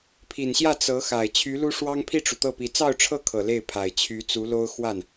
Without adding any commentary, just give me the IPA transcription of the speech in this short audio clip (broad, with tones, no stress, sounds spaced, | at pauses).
pʰ i˨˩ n ɕ j ä˥˩ t͡s ɤ˧˥ x a˨˩ ɪ̯ t͡ɕʰ y˧˥ l u˥ ʂ w ɑ˥ ŋ pʰ i˥˩ ʈ͡ʂ u˩ t̪ ɤ˥˩ p i˧˥ t͡s ɑ˥˧ ʊ̯ ʈ͡ʂʰ ɤ˥˩ kʰ ɤ˨˩ l e˥˩ ɪ̯ pʰ a˨˩ ɪ̯ t͡ɕʰ y˧˥ t͡s u˧˥ l o˥ ʊ̯ x w a˥˩ n